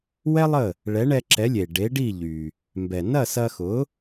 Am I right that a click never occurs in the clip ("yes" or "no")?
no